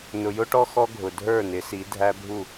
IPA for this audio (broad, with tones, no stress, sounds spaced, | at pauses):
n ʊ˨ j ʊ˦ ʈ ɔ˦ x ɔ˦ ɡʱ ʊ˨ dʱ ə˞˦˨ n ɪ˨˦ s i˨˦ dʱ æ˦ bʱ u˦˨